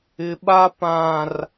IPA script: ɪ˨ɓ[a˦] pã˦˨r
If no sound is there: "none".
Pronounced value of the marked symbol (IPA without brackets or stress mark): a˦